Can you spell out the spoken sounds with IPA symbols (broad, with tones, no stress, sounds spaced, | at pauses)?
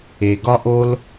e˩ ɡ ɒ˧ ʔ o˧ l